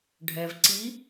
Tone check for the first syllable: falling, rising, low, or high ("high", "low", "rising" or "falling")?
low